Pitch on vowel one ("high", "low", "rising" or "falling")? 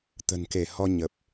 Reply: low